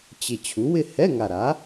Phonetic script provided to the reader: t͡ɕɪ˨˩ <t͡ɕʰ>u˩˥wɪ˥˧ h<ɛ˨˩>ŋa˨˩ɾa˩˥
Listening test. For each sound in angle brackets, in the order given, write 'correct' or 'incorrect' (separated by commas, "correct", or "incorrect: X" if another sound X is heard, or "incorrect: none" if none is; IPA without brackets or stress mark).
correct, incorrect: ɛ˧˥˧